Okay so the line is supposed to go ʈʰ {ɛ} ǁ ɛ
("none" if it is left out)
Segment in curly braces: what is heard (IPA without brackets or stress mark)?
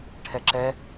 ɛ